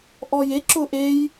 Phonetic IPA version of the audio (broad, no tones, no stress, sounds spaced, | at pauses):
ʔ ɔ j e ǁ ʊ ʔ e j